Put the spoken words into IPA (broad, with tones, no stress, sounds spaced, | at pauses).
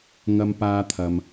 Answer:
ŋ ɐ˧ m p aː˧ t̪ʰ ɐ˨ m